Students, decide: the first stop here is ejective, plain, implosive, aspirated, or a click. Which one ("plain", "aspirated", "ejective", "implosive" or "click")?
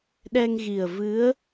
implosive